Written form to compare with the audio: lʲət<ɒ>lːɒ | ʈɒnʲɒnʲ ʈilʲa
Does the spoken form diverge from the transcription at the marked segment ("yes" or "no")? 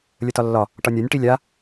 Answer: no